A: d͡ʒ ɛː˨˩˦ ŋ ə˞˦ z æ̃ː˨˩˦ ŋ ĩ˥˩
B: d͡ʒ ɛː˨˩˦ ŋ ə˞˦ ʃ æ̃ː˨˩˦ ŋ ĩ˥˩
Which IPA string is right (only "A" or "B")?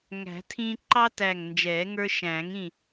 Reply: B